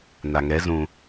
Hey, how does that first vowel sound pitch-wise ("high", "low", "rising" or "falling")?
low